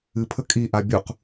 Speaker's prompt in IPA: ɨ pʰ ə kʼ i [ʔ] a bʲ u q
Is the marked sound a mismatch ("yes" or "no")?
no